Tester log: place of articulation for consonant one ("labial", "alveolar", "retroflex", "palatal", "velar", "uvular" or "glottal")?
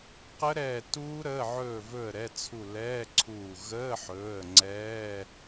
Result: uvular